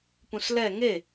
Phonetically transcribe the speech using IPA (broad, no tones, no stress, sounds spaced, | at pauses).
p ũ s l ɛ ŋ e